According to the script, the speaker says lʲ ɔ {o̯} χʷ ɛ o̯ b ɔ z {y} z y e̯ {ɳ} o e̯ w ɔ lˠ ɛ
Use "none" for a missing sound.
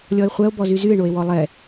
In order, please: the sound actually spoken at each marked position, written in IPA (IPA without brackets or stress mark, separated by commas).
e̯, y, ɳ